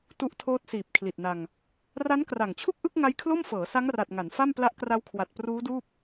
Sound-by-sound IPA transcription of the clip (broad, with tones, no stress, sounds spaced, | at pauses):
t u˦˥ ʔ tʰ oː˦˥ t̚ s iː˨˩ p̚ kʰ l i˨˩ t̚ n a˧ ŋ | r a˦˥ n k r a˨˩ ŋ t͡ɕʰ u˥˩ k̚ ʔ ɯ˥˩ k̚ ŋ a˦˥ j kʰ l o˥˩ m f ɤː˩˦ s a˦˥ ŋ r a˨˩ t̚ ŋ a˩˦ n f a˥˩ m p l a˦˥ ʔ k r a˦˥ w kʰ w a˨˩ t̚ p r uː˦˥ d uː˥˩ p̚